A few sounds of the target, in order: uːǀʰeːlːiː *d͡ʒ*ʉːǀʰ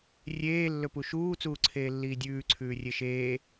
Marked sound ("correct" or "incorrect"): incorrect